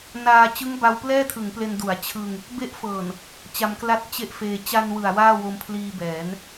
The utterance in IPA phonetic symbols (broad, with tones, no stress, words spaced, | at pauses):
naː˧ t͡ɕɯ˦˥ŋba˧wplɛː˥˩tʰɯ˩˦ŋ ple˧ndu˩˦a̯ t͡ɕʰɯ˧ŋ | be˦˥ʔfɤː˨˩n | t͡ɕa˧mkla˥˩t̚ t͡ɕe˥˩ʔfeː˧ t͡ɕa˧n wɯ˨˩a̯waː˥˩wo˧m pʰliː˧ bɛː˩˦n